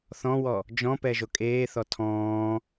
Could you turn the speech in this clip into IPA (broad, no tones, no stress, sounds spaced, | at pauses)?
θ ɔ̃ w ɔ | d͡ʒ ɔ̃ p ɛ ʒ o kʼ eː θ ɔ tʰ ɔ̃ː